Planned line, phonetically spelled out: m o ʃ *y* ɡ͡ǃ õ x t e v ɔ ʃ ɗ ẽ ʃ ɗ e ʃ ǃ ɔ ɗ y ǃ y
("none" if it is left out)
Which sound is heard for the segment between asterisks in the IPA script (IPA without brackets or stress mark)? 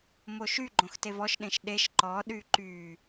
y